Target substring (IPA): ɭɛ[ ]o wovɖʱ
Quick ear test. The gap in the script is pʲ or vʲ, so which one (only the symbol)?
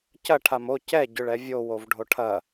vʲ